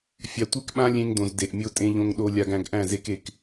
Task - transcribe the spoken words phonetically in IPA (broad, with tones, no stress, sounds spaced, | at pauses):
fʲ a˨ tʷ e˦ k ɓ ã˦ lʲ ẽ˦ ŋ d õ˨ z d e˨ ʔ mʲ o˦ tʼ ẽ˦ ʎ õ˦ ŋ ɗ o˦ lʲ a˦ ɡ æ̃˦ ɡ ʔ æ̃˦˨ z e˦ k e˨ k